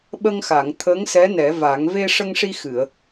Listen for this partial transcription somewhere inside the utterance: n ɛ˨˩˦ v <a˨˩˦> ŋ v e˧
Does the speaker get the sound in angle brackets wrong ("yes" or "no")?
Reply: no